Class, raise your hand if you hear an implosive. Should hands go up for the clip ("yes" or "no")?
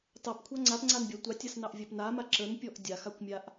no